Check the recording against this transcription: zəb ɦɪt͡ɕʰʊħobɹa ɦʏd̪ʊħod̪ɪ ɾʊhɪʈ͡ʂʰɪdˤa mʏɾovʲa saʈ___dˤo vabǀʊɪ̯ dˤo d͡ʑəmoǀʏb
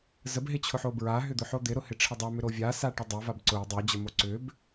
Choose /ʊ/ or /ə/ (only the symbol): ə